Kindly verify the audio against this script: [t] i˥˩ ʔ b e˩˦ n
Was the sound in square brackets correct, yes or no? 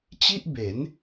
no